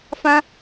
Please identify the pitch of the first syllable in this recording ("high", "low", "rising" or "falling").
high